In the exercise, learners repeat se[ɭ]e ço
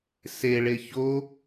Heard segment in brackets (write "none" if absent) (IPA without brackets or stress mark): ɭ